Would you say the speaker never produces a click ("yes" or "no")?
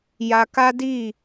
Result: yes